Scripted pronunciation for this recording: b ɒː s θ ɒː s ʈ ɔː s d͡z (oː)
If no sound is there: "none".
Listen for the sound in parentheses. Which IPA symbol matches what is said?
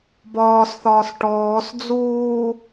uː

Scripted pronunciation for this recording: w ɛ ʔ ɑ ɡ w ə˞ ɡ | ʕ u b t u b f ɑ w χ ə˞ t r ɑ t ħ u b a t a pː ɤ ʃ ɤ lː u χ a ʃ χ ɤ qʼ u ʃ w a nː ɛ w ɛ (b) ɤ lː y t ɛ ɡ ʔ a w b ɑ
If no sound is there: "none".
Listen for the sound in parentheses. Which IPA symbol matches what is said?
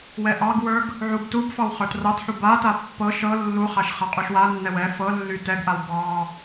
f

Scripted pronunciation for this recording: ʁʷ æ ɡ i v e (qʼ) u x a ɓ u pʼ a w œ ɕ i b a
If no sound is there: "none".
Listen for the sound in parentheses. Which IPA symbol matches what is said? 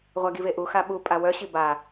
ʔ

